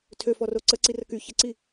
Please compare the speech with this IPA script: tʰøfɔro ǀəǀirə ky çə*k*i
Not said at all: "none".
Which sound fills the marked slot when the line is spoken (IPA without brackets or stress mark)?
ǀ